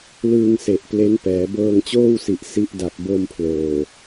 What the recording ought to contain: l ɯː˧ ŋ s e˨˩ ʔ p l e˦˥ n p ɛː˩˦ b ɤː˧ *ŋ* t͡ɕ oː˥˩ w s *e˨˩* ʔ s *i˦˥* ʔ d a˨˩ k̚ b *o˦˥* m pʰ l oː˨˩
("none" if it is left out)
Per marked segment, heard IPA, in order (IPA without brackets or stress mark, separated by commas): ŋ, i˨˩, i˦˥, o˧